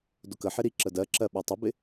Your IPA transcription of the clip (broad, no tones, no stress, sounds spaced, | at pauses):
d ʊ k ə ħ ɪ ɾ i ǁ ə d ɜ ǁ ɜ ɓ ɛ tˤ ʊ b ɪ